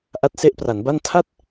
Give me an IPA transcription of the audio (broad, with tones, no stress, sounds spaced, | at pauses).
ʔ a˦˥ t̚ s e˦˥ ʔ p r a˩˦ n b a˥˩ n tʰ a˥˩ t̚